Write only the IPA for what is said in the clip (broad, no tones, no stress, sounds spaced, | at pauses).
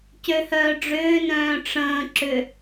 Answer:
c ø h œː ɖ͡ʐ ʏː n œ̃ː ʈ͡ʂ ə̃ː ǁ ʏ